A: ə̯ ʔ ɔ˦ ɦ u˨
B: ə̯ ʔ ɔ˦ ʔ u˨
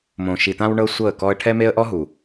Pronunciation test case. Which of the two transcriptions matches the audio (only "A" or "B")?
A